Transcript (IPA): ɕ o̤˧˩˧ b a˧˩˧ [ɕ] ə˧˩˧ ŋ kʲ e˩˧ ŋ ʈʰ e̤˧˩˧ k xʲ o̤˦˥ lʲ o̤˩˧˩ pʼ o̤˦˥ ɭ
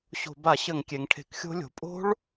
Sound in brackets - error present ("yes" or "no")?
no